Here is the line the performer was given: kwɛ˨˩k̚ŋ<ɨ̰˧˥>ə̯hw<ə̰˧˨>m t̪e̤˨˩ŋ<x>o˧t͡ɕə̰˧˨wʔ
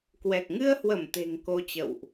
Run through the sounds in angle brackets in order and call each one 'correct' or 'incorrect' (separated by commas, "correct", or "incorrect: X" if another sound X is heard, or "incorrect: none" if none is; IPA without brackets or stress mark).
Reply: incorrect: ɨ˧, incorrect: ə˧˩, incorrect: k